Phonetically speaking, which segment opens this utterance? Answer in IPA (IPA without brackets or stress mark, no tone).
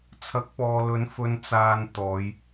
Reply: t͡sʰ